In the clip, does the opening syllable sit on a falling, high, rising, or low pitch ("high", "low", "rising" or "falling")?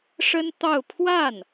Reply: high